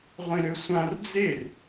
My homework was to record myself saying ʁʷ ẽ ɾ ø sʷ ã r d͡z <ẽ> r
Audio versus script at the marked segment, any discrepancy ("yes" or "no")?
yes